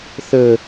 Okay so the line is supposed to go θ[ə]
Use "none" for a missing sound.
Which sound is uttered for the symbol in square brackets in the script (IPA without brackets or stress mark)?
ə